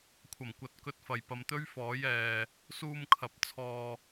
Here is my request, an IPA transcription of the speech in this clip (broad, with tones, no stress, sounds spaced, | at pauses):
kʷʰ ɐ˨˩ m kʷ ɐ˨˥ t̚ k ɵ˧ t̚ f ɐ˨ j p ɐ˨ m t̪ ɵ˥ ɥ f ɔː˨˥ j ɛː˨ | s uː˧ m kʰ ɐ˨˥ p̚ t͡sʰ ɔː˧